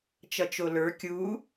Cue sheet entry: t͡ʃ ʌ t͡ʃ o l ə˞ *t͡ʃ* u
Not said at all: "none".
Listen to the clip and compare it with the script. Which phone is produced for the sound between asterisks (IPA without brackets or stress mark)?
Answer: kʲ